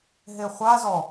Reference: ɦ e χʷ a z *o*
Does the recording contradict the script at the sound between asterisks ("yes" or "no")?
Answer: yes